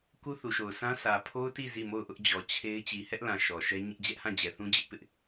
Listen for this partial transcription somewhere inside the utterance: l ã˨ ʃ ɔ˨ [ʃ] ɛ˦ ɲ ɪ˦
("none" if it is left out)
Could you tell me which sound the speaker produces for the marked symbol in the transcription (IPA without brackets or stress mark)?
ʃ